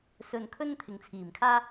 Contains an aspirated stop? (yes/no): yes